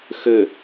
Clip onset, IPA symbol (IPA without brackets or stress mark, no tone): x